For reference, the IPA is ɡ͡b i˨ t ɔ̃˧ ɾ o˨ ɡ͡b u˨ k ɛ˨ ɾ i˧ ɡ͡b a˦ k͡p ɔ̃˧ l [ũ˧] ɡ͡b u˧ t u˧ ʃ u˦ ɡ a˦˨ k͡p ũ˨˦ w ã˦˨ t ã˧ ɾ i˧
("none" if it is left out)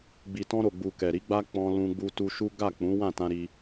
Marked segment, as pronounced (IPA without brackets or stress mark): ũ˧